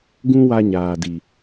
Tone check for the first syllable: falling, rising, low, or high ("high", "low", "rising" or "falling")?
high